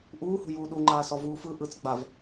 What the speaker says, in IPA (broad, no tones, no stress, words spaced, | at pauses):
ʔuːhṳ juːɗuŋ͡ǃaːsɔ vuːfɯ ʔɯt͡s ɡ͡bav